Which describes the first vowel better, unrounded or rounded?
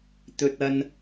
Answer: rounded